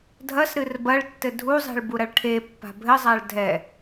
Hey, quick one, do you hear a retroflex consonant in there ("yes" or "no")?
yes